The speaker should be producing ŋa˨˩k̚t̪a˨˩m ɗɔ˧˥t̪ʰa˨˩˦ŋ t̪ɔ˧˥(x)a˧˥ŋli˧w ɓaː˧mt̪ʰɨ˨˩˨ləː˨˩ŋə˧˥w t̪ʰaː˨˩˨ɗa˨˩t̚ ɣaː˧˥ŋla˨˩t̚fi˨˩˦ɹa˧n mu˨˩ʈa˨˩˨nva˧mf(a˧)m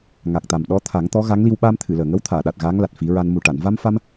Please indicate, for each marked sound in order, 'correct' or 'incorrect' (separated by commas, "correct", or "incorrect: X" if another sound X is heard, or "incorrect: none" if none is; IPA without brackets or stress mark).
incorrect: ɣ, correct